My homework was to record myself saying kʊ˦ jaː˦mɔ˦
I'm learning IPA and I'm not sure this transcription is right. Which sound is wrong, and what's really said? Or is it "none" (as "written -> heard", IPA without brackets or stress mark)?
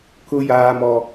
none